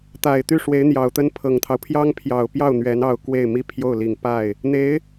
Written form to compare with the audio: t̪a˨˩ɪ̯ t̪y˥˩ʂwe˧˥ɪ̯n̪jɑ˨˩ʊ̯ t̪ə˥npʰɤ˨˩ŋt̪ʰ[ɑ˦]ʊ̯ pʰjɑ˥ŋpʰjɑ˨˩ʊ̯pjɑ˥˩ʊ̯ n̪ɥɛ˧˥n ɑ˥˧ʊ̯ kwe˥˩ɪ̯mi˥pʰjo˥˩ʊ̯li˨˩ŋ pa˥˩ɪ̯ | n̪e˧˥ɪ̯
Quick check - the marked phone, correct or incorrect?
correct